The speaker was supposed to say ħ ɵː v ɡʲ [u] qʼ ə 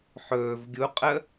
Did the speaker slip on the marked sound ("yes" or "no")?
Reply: no